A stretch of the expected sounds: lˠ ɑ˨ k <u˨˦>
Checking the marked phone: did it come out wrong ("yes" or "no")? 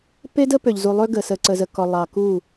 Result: yes